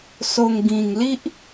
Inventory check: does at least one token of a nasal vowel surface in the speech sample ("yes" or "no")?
yes